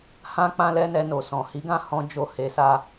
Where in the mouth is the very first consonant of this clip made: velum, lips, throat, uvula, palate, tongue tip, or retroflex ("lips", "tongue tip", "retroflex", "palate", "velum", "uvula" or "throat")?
throat